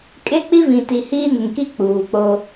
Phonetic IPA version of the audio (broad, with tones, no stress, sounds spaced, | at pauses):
kʼ e˦ k͡p i˦ v ĩ˨ t i˨ h iː˦ n ɪ˨ ŋ k i˦ k͡p uː˨ k͡p o˦